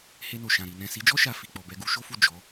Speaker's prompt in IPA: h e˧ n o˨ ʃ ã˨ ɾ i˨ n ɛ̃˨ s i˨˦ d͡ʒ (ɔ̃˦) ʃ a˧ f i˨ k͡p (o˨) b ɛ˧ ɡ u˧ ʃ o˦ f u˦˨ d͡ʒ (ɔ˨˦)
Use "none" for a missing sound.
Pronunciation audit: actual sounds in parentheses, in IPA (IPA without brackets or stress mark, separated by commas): ɔ˦, ɔ˨, ɔ˨˦